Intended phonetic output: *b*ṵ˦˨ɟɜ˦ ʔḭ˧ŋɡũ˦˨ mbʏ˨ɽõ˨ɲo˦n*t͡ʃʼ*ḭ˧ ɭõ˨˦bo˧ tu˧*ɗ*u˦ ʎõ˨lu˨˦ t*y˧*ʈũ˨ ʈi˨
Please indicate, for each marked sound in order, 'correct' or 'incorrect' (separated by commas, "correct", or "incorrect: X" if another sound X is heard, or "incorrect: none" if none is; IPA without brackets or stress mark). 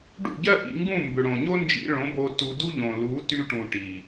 incorrect: ɖ, incorrect: d͡ʒ, incorrect: d, correct